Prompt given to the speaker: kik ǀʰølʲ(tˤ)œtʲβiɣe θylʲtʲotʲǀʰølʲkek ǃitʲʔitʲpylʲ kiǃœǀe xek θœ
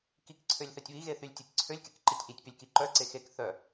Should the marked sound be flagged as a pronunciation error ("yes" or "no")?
yes